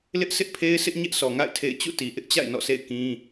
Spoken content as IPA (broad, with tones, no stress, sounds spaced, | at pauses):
l ɪ˦ ʔ sʰ ɪ˦ ʔ pʰ e˦ ɪ̯ s ɪ˦ ʔ ɲ ɛ˦ ʔ sʰ ɔ˨ ŋ a̰˦˨ ɪ̯ tʰ ḛ˦˨ ɪ̯ t͡ɕ ṵ˦˨ t i˨ ʔ ɪ˦ ʔ t͡ɕ a̰˦˨ ɪ̯ n ɔ̰˦˨ s ḛ˦˨ ɪ̯ k ĩ˦